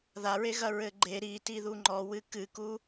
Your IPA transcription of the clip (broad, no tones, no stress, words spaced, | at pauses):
ðaɹeɣɐ ɹɘɡ͡ǃe ɾi tiðuŋ͡ǃɔwɨ kɨku